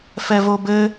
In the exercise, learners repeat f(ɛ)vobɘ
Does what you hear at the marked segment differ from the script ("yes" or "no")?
no